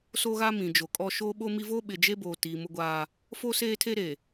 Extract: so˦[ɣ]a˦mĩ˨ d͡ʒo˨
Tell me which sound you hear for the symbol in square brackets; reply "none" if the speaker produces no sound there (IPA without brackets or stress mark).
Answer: ɣ